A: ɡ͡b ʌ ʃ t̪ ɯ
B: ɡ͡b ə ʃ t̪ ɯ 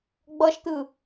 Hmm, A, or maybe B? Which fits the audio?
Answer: A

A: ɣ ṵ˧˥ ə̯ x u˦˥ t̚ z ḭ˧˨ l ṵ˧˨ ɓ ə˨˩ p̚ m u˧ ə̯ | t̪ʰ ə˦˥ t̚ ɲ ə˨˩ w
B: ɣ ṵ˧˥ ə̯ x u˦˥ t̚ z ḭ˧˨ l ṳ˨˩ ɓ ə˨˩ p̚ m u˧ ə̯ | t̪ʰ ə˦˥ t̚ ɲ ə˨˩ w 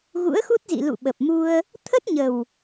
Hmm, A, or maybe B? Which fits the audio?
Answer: A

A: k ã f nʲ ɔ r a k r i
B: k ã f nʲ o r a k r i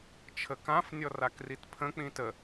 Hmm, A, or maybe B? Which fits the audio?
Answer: A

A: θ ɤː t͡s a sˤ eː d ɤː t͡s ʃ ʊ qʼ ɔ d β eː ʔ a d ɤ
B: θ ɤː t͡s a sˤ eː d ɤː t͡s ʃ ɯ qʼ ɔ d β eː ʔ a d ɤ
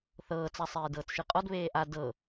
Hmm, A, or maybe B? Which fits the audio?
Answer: B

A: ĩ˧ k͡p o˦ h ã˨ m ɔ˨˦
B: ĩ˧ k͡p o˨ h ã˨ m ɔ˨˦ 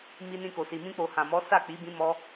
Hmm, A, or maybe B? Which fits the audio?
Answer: B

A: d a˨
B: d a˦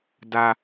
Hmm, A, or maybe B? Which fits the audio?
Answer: B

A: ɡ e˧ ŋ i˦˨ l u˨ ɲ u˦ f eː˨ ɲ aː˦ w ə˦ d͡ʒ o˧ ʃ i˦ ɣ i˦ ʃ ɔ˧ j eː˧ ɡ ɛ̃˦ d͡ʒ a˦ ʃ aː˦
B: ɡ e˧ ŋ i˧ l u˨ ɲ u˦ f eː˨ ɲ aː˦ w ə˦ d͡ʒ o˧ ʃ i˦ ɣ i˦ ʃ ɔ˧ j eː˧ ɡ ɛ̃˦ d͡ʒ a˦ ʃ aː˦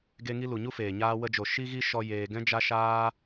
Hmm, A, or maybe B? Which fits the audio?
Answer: B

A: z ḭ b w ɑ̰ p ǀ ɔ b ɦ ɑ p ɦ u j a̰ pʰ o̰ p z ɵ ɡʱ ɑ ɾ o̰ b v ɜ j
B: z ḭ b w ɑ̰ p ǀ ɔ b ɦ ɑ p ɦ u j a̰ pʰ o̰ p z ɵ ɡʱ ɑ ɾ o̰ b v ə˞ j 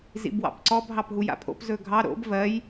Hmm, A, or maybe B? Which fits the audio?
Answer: A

